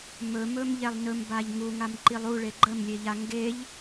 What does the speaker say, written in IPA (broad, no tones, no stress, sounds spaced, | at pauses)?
m ɵ m ɵ m ʎ ɛ lˠ n ɵ m b a ʎ ŋ u ŋ a m ǃ i lˠ u ɭ e ɡ͡ǃ ə m lʲ e ʎ a ŋ ɡ e ʎ